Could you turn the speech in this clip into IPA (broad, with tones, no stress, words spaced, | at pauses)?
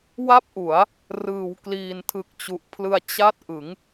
wa˥˩p̚ʔu˩˦a̯ | rɯː˩˦wkliː˨˩ntʰɯ˨˩k̚ t͡ɕu˨˩ʔpʰlɯ˧a̯ t͡ɕa˥˩t̚ ʔɯ˩˦ŋ